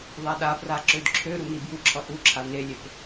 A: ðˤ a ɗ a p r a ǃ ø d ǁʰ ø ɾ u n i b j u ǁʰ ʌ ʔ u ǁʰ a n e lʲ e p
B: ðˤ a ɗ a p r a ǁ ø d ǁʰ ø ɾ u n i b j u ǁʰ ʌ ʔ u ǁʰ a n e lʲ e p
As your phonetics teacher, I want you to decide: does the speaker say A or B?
B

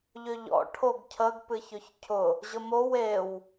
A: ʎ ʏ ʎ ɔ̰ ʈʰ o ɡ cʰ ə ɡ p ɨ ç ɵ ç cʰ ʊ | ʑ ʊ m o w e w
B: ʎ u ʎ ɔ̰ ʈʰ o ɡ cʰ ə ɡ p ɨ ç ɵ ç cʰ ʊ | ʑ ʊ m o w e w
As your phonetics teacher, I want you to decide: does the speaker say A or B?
A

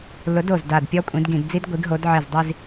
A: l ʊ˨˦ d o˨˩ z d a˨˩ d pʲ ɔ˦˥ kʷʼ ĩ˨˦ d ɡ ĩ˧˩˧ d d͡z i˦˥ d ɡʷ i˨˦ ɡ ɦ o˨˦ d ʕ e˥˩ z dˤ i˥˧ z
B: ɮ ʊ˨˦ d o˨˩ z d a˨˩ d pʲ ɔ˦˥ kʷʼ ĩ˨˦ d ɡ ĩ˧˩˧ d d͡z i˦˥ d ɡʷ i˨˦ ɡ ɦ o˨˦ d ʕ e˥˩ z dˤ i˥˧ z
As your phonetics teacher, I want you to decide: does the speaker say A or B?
A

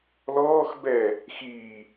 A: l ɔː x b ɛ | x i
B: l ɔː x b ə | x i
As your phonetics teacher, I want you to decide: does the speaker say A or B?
A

